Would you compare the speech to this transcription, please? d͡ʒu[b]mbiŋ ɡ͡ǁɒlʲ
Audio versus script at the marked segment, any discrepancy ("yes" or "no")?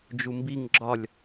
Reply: yes